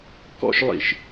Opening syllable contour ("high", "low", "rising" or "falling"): high